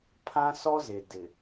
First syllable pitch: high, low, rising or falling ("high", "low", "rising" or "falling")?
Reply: high